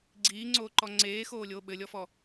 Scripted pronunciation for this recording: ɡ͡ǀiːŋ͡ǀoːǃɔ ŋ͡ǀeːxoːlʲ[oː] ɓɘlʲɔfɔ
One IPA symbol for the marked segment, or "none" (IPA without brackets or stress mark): oː